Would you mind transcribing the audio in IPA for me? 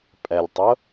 pʼ ɛ lʲ tˤ ʊ

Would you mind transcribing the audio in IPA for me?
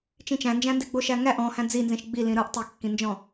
t͡ʃ ĩ t͡ʃ æ̃ n d͡ʒ æ̃ n d e ɡ͡b o ʃ æ ŋ æ ʔ ɔ̃ h æ̃ d͡z i n z ĩ ʃ ɡ͡b i l ĩ ɾ ɯ ʔ tˤ i kː ĩ n d͡ʒ ɔ̃

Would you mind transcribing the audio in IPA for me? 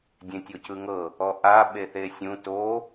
dʲ ẽ tʲ o c ɯ ŋ ɤ | ɔ ʔ a ɓ e θ e sʲ ũ t o

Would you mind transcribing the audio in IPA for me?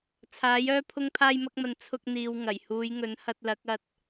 t͡sʰ aː˨˥ j œː˥ pʰ ʊ˧ ŋ pʰ aː˧ j m ɐ˧ k̚ m ɐ˨ n t͡sʰ ʊ˧ k̚ n̪ iː˨ w ŋ ɐ˨˩ j h uː˨˧ j ŋ ɵ˨˥ n h ɐ˧ t̚ l ɐ˨˥ k̚ ɐ˧ t̚

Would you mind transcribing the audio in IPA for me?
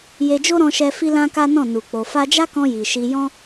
j e˧ d͡ʒ o˦ ɾ ɔ̃˧ ʃ ɛ˧ f i˦ l ã˦ k a˦ n ɔ̃˦˨ n u˨ k͡p o˨ f a˧ d͡ʒ a˦ k ɔ̃˧ j i˨ ʃ i˧ j ɔ̃˦

